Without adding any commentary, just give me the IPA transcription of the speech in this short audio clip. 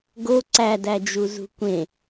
ɡ o ǀ æ d æ d͡ʒ u z ṳ kʷ ẽ

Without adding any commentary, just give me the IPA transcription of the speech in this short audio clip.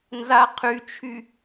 n z a qʰ y t͡ʃʰ y

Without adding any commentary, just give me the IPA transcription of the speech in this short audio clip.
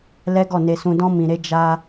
l ɛ˦ ɡ ɔ˦˨ n e˧ s ũ˧ d ɔ̃˦ m ĩ˧ ɾ e˦ d͡ʒ a˧

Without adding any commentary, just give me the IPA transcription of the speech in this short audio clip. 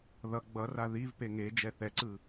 ð ʌ ɡ͡b ʌ r a ð i v p e ŋ e d͡ʒ ɛ θ ɛ ǀ ɯ

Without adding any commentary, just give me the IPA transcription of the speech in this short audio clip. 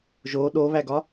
ʒ o ɗ o β æ ɡ ɒ

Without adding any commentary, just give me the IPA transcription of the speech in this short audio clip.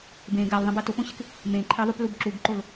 b ẽ ɡ a l ðˤ ə̃ b a t o p õ ɕ ɪ k | m ẽ ǃʰ e ðˤ u p l u b ǁ u ɡ ǃ o l

